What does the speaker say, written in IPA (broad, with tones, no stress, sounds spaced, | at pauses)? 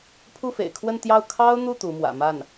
pʰ u˥˩ f ḛ˨˩ ɪ̯ kʰ w ə˥˧ n t̪ j ɑ˥˩ ʊ̯ kʰ ɑ˥ ʊ̯ n̪ u˥˩ t̪ u˧˥ m w ä̰˨˩ m a˥˩ n